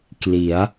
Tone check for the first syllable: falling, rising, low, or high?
rising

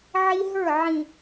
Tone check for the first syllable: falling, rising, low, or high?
high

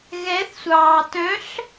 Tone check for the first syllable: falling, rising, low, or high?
rising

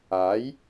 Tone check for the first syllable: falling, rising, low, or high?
rising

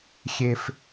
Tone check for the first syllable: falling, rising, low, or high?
high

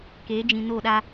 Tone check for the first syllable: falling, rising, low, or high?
rising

